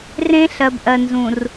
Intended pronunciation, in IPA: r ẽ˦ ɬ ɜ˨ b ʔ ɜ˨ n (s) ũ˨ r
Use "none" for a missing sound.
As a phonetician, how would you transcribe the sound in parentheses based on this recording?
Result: z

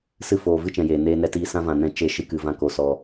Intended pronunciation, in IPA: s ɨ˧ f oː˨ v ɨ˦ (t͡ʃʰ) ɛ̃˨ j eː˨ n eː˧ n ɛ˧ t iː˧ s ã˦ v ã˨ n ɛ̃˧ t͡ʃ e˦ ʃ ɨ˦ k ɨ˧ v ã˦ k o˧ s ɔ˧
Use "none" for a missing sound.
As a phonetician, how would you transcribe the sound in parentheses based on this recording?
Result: t͡ʃ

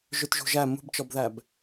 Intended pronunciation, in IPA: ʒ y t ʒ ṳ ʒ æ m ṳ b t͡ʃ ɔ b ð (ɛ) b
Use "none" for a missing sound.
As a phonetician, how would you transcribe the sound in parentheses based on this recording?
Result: æ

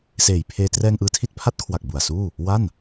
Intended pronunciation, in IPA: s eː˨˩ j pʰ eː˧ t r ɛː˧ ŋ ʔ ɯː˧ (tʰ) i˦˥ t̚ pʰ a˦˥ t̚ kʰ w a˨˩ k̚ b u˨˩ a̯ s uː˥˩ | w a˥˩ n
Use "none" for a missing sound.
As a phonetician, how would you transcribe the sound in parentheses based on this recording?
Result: tʰ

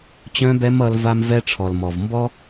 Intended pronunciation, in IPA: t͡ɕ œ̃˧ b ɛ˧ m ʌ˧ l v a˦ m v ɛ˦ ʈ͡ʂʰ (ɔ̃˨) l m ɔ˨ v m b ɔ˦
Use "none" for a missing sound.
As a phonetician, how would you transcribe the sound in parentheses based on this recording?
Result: ɔ˨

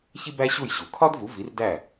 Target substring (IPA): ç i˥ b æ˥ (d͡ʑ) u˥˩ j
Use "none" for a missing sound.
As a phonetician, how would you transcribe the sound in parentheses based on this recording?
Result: ɕ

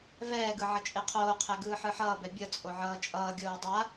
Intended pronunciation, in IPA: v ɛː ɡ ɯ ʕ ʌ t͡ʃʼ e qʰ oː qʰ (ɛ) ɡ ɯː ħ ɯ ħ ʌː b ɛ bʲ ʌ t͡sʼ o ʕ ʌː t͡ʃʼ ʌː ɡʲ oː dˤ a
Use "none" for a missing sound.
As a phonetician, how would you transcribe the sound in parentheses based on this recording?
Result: ɛ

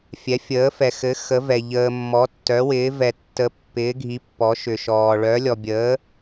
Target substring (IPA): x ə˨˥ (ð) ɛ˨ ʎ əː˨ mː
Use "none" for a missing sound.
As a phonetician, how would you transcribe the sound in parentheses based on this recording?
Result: v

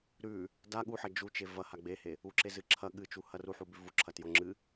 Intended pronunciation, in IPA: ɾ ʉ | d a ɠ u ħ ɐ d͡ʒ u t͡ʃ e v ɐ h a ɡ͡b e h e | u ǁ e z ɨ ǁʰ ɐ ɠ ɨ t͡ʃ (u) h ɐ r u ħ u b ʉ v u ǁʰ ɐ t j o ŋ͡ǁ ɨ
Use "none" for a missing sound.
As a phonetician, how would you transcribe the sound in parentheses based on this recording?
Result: u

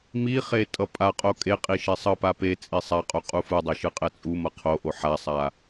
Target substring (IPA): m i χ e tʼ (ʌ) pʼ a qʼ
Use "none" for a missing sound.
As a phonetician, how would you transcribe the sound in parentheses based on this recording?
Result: ʌ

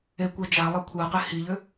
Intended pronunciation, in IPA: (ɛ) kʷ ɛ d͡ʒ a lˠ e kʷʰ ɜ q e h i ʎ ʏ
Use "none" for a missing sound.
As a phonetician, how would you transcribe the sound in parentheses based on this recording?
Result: e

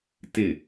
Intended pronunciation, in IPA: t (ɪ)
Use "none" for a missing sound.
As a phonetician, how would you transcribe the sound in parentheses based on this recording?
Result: ɪ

